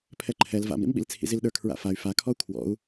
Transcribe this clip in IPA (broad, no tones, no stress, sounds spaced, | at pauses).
pʰ ɛ ǃʰ ɛ l v a̰ m ɾ ḭ m ɓ ḭ l t͡sʰ ḭ z i l ɗ ə˞ kʰ ɹ a̰ f a y̯ f a kʰ ɔ u̯ kʰ w ɔ̰ u̯